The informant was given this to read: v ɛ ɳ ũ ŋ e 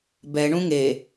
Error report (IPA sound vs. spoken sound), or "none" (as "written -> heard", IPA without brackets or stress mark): v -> b